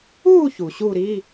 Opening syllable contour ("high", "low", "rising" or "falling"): falling